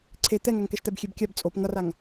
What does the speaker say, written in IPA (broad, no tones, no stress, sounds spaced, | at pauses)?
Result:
ǀʰ e t̪ ɛ ŋ a ŋ k ɛ ʃ t̪ ɛ b xʲ e b kʲ a b t͡sʼ o p ŋ ʌ r a ŋ